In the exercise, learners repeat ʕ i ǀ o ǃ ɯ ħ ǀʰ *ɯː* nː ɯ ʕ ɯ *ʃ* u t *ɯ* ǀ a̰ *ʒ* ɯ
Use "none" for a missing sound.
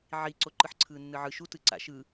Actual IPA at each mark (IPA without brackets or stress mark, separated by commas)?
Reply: ɯː, ʃ, ɯ, ʃ